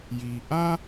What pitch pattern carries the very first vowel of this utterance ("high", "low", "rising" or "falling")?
low